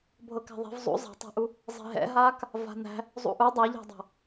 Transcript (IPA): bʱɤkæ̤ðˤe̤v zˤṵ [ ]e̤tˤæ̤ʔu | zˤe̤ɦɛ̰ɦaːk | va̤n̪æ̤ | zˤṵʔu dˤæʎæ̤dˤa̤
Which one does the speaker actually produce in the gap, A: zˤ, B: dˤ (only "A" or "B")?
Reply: A